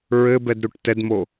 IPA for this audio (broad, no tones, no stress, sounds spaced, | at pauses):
ɹ ɘ b ɛ d ɾ u ʈ t ɛ d m o